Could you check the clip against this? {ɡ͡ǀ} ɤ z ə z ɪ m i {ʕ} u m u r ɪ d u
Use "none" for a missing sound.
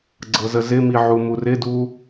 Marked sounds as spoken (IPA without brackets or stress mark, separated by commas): ɡ͡ǀ, ʕ